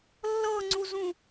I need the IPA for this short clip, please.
lː ɤ ŋ͡ǀ u z ũ

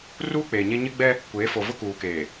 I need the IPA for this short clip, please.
r uː˦ k͡p eː˨ ɲ e˦ ɲ ɪ˦ ɡ͡b ɛ˦ | kʷ eː˨˦ f o˨ v ʊ˦ k uː˨ k eː˨

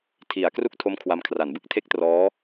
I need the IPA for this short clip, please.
tʰ i˩˦ a̯ k r u˥˩ k̚ tʰ o˦˥ m kʰ w a˦˥ m kʰ r a˩˦ n b ɯ˥˩ k̚ tʰ e˥˩ k̚ t r ɔː˦˥

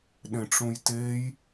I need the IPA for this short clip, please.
ɗ ẽ ʈ͡ʂ ũ j t e j

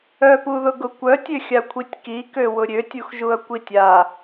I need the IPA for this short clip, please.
œ p u ð ʊ ɡ ʊ kʷ œ tʲ ø xʲ a kʷʰ i tʲ k i k ø w ʊ ɾʲ ø tʲ u x ʒ u ɐ̯ kʷ i tʲ a

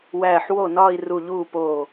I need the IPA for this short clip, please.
w æː˧˩ ħ w o˥˩ n ɒː˥˧ i̯ r u˧˩ ʎ uː˥˩ p oː˧˩

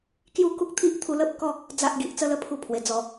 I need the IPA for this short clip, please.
k j u˥˧ k u˦ k̚ t̪ʰ i˦ ʔ t̪ʰ u˧ l ə˦ p̚ k ɔ˥˧ | d͡z a˦ ʔ ɡ i˨ ʔ t͡s ə˦ l ə˥˧ pʰ u˥˧ pʰ w e˨˩ d͡z ɔ˨˩

